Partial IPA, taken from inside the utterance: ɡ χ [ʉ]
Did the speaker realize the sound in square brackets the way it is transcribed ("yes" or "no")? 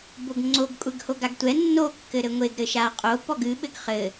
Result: no